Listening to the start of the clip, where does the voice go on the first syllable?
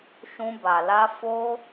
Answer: high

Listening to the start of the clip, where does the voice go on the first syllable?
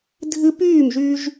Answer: high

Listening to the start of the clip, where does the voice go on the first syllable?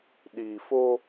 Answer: low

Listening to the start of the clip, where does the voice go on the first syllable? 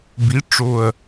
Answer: rising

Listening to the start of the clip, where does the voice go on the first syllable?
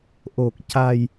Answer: low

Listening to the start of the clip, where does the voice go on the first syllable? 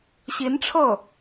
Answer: rising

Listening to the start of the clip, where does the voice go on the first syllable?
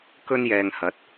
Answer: high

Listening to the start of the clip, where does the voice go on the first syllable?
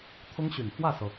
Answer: high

